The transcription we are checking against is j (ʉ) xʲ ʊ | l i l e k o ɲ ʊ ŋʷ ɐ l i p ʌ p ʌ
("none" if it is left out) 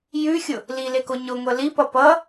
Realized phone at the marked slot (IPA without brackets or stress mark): ʉ